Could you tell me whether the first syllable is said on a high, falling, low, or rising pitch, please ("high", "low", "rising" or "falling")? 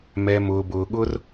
low